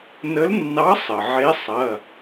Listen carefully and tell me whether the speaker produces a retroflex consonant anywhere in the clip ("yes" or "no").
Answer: no